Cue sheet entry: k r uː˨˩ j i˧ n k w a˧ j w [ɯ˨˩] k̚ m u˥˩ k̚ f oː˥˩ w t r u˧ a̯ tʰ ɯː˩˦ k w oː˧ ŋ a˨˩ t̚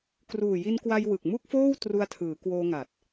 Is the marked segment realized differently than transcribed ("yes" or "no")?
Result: no